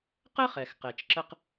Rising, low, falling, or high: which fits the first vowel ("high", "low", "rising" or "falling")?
high